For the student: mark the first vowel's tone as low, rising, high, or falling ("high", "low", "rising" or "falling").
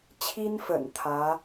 high